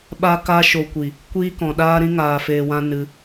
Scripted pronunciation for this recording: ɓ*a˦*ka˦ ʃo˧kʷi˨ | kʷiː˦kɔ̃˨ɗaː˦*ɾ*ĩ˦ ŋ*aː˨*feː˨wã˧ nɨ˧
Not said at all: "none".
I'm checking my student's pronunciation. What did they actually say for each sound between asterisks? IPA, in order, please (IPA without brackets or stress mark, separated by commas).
a˦, ɾ, aː˨